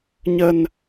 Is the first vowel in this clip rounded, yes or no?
no